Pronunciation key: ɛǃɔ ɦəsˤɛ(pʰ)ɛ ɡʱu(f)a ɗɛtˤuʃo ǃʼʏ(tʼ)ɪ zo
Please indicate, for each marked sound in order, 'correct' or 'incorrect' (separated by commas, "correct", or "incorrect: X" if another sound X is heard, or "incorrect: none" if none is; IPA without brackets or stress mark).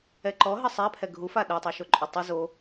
correct, correct, incorrect: tˤ